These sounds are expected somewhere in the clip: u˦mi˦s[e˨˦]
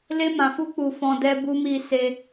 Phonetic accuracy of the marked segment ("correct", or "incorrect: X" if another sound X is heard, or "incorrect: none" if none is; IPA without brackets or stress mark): incorrect: e˦